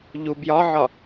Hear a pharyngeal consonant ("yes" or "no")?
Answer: yes